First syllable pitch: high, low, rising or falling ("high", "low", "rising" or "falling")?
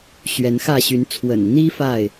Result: rising